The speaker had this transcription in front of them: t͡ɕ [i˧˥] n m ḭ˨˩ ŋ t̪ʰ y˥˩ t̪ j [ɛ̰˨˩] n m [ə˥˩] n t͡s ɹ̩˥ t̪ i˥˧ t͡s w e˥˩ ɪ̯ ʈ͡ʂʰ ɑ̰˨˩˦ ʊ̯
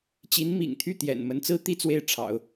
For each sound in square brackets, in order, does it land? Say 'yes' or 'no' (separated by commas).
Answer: yes, yes, no